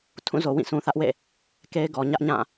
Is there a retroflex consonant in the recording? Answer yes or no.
no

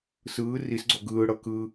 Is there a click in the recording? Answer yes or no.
yes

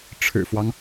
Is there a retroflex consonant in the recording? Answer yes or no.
yes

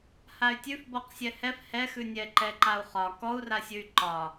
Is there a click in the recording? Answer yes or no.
yes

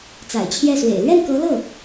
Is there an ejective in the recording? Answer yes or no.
no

